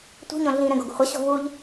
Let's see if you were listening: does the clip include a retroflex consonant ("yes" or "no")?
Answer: no